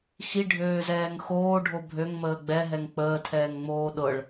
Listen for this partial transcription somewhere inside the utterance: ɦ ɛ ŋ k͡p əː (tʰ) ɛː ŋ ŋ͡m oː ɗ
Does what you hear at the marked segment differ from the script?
no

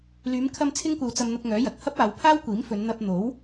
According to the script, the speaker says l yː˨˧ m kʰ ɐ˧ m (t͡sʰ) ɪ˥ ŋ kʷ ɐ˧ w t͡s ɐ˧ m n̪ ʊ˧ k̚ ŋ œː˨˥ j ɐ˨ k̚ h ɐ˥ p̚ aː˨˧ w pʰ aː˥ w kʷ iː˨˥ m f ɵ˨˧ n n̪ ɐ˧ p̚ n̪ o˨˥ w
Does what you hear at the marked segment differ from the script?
no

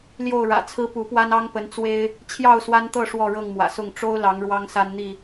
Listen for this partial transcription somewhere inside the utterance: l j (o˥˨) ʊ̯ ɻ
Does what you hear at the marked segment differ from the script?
no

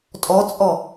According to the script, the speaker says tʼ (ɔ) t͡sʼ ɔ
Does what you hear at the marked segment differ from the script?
no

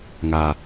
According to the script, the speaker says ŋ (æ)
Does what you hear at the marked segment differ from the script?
yes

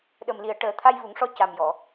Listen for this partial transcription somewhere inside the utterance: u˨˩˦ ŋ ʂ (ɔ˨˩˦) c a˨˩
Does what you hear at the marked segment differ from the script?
yes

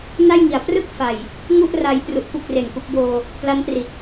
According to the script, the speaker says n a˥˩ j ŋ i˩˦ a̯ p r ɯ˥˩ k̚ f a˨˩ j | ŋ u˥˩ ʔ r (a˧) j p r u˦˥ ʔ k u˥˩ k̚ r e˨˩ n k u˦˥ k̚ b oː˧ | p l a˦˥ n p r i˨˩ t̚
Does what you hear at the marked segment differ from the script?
yes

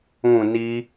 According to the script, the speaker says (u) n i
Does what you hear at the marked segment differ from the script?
yes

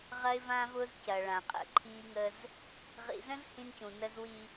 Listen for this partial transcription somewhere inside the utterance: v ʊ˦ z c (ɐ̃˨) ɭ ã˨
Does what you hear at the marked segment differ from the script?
yes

